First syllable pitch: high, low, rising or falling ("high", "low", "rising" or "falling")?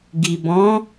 low